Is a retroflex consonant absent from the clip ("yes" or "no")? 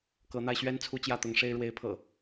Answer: no